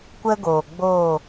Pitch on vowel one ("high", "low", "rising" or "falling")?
high